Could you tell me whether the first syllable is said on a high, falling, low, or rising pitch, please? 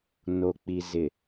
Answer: low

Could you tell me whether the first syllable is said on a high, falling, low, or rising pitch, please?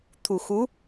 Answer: low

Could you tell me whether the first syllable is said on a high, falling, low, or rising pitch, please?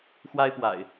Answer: high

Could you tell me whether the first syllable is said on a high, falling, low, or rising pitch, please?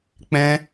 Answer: high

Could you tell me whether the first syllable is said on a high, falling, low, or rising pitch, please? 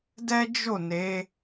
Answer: high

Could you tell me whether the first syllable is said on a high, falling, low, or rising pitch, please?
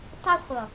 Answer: high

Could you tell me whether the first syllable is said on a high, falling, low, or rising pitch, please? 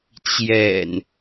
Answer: low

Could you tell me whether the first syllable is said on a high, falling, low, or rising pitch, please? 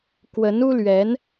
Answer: rising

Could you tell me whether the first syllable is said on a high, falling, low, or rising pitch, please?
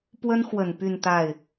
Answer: high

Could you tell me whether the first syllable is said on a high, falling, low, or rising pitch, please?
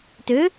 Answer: rising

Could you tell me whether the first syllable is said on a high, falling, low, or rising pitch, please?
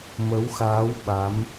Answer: rising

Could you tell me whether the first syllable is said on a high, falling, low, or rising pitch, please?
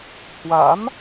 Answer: rising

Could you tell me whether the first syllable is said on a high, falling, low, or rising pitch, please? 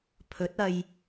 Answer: rising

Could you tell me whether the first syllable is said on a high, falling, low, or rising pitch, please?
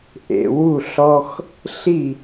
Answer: low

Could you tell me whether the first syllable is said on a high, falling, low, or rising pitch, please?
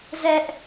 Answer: high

